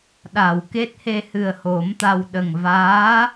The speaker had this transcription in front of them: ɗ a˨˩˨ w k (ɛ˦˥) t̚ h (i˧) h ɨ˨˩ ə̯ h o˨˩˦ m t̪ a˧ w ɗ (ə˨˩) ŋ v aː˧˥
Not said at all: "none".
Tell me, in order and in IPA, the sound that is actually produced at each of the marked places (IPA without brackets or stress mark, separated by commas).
e˦˥, e˧, ə˨˩